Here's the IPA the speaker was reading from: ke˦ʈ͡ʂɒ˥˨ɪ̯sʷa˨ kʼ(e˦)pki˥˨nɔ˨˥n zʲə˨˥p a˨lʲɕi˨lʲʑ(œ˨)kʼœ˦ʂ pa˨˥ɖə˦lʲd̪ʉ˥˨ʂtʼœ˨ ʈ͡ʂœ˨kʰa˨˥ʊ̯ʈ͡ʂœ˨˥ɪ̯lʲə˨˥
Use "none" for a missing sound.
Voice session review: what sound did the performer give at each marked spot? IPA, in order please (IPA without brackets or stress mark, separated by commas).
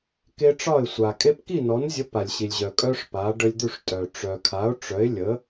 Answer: e˦, œ˨